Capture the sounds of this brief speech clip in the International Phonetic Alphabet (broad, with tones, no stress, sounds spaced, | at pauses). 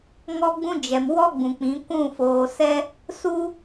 ŋ ɔ˦ ɡ͡b ũ˦ d͡ʒ ɛ˨ m w ɔ˦ ɡ͡b ũ˨ k͡p ĩ˨˦ kʷ ũ˦˨ f oː˨ s ɛ˦ | s u˦